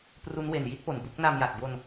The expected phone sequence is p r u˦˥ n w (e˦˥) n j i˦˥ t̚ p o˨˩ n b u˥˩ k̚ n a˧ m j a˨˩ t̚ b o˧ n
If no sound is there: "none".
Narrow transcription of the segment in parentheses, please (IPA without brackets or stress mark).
e˨˩